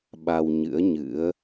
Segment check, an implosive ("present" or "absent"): present